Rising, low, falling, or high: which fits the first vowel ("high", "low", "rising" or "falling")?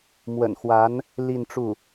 low